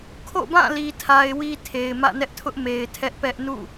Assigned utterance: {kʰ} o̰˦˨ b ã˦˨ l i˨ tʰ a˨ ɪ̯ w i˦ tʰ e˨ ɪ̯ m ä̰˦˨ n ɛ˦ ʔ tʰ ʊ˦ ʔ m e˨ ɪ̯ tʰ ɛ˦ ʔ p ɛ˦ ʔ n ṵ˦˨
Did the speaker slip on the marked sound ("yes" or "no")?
no